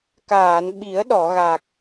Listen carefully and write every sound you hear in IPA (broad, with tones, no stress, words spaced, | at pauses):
kaː˨˩˨nɓi˨˩˦ə̯ɗɔ˨˩˨ɣa˨˩k̚